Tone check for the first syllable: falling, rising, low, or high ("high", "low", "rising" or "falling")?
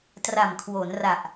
low